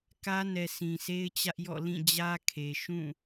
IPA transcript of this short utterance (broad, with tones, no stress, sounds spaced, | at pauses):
k ä˦ n ɛ˨ s ĩ˨ s e˦ ɪ̯ t͡ɕ ä˦ ʔ j ɔ̰˦˨ l ĩ˦˨ d͡ʑ ä˦ kʰ e˨ ʃ ũ˦˨